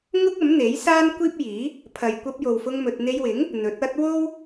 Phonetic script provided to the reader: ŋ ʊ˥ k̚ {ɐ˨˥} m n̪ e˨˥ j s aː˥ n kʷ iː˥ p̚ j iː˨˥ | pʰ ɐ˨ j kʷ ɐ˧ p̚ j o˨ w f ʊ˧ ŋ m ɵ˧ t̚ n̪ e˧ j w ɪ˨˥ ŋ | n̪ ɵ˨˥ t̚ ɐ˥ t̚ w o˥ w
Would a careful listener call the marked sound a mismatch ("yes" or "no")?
no